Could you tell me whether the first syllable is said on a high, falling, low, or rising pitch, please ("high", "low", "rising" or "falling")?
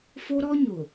high